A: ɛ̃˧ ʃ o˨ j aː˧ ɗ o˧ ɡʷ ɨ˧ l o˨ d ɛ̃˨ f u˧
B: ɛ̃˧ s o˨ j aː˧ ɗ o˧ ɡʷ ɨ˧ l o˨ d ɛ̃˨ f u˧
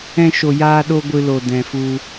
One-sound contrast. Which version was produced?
A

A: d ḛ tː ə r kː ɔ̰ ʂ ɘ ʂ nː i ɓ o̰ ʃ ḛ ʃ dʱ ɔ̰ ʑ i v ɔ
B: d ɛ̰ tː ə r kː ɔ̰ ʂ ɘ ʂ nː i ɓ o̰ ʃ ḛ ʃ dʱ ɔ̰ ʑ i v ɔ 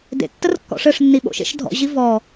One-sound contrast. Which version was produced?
A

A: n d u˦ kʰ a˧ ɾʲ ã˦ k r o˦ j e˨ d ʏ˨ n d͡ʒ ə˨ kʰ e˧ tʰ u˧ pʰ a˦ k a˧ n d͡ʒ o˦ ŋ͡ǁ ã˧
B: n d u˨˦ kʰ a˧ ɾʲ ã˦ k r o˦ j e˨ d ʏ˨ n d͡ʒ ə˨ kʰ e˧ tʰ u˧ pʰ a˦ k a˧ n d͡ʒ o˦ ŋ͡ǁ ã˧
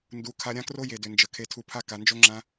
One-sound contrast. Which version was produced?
B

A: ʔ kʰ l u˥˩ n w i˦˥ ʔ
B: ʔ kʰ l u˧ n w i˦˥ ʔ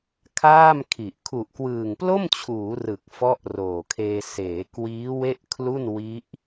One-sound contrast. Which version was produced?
A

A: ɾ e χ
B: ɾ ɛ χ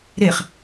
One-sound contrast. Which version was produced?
A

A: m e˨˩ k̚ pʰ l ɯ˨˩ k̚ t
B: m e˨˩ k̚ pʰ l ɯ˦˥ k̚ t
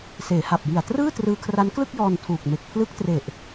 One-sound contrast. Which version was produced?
B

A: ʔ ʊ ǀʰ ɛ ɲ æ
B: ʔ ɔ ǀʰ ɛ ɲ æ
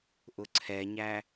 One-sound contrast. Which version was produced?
A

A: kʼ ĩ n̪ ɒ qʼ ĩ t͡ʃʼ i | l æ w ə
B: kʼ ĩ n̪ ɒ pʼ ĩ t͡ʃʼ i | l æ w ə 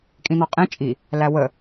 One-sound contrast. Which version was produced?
A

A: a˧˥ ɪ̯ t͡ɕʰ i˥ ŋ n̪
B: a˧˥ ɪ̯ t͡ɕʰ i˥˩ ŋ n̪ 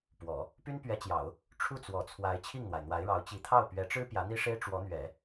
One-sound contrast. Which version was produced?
B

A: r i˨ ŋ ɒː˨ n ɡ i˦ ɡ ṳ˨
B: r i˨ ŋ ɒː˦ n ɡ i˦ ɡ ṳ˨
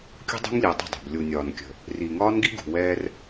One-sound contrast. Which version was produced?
B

